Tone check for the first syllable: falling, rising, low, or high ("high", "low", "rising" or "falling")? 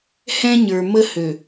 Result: high